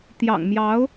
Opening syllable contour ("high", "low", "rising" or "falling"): low